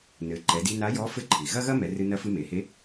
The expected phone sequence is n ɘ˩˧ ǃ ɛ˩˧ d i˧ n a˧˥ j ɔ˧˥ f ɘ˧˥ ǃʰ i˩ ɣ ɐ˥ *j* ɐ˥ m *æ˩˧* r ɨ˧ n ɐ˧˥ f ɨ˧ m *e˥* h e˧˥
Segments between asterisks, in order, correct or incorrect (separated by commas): incorrect, incorrect, incorrect